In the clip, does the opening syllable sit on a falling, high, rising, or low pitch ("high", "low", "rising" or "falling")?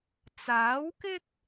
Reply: rising